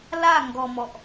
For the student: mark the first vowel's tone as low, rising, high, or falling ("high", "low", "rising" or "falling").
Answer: falling